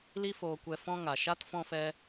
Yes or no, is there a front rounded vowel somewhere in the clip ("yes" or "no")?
no